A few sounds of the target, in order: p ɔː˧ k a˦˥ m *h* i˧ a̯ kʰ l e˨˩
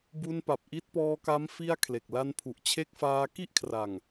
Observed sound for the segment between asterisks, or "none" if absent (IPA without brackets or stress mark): f